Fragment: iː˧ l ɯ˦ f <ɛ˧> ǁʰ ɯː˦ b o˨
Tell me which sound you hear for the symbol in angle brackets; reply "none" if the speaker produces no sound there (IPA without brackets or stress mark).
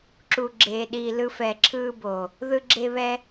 ɛ˧